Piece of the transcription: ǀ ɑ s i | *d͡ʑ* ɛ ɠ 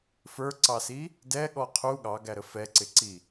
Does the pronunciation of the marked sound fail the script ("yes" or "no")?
yes